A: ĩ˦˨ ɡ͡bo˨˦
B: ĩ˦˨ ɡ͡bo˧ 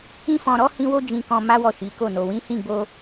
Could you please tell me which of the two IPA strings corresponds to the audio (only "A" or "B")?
B